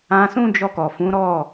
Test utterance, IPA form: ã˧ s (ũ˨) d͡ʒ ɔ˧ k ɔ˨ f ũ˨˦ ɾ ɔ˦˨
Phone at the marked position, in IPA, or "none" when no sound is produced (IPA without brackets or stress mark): ũ˦